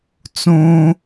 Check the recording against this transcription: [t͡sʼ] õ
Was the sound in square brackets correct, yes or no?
no